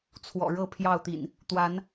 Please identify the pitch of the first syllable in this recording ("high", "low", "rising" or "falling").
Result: low